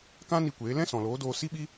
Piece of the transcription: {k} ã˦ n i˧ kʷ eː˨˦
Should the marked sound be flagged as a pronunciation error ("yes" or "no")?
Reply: no